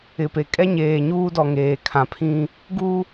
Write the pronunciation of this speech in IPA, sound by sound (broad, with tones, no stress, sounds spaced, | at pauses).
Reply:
ɪ˨ p e˨ kʼ ɛ˦ ɲ eː˨ ɲ uː˦ d ɔ˨ ŋ eː˨ kʰ ã˨ pʰ ĩ˦ | ɡ u˦